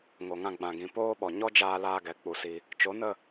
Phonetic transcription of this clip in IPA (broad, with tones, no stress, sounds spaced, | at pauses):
ŋ o˨ ŋ ã˧ ɡ͡b ã˨ ɡ ĩ˨ p oː˦ ɓ ɔ˨ ɲ ɔ˦ d͡ʒ aː˧ l aː˧ ɡ ɛ˨ k͡p u˧ s i˧ | t͡ʃ o˨˦ n ə˦˨